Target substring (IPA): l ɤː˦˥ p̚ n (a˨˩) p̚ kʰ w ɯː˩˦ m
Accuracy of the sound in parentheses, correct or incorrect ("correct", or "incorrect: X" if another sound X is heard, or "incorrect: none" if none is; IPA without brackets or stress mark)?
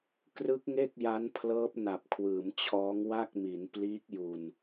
correct